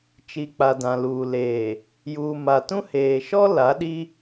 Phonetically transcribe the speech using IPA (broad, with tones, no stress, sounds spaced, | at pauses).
t͡ʃ i˨ k͡p a˨ d ã˨ l uː˨ l eː˨ | j uː˨ m a˨ t ũ˦ h eː˨ ʃ ɔ˦ l a˨˦ ɗ i˦